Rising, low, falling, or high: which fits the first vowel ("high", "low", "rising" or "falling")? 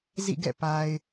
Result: falling